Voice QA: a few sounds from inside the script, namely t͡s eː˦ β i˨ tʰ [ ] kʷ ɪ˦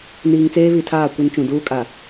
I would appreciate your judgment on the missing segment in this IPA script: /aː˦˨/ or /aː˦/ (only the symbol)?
aː˦˨